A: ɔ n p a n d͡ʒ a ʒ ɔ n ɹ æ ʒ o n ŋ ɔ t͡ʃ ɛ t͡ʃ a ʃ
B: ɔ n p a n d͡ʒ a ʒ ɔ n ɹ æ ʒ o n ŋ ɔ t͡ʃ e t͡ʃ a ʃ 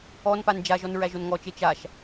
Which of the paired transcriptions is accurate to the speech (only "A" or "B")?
B